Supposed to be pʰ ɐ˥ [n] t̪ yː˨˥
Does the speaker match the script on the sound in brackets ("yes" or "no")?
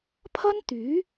yes